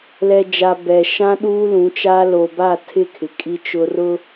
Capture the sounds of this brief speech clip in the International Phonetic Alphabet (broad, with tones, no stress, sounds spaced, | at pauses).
l ɛ˨ d͡ʒ a˨ b ɛ˨ ʃ ã˦ ɗ uː˦ l ũ˨˦ t͡ʃ a˦ l o˨ b a˦˨ tʰ ɪ˦˨ kʰ ɪ˨ kʼ i˦ t͡ʃ ʊ˦ r ʊ˦